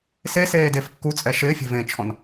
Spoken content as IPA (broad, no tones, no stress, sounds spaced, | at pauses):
s e s eː d e f kː u t͡sʼ ɛ ʃ ɪː fʲ e̤ v ẽ t͡ʃʰ ɔ̃ n